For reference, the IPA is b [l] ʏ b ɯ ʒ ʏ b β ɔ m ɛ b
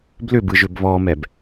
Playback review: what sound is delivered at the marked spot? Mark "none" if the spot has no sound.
l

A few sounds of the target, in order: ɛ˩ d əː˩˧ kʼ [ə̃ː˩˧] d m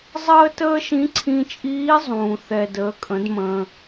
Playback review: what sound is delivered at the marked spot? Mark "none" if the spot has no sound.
ə̃˩˧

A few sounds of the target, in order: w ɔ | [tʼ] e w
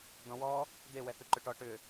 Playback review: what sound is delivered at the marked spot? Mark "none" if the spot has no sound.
d̪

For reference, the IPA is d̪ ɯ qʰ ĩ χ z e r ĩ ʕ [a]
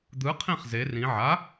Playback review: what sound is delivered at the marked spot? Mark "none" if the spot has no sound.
a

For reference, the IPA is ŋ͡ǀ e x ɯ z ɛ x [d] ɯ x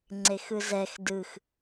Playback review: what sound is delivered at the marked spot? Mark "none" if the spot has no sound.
d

